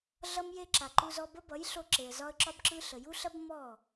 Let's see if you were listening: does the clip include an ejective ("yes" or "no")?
no